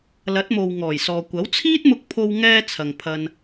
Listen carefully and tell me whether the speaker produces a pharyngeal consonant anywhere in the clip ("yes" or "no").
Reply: no